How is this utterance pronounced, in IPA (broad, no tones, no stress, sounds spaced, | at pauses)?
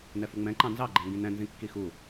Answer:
n ɛ f u ŋ͡m ɛ̃ ǃ ɑ̃ n z ɑ ɡ͡ǃ ɛ ŋ ɡ ĩ n ɛ̃ n z ĩ kː i x u